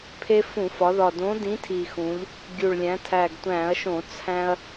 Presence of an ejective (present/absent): absent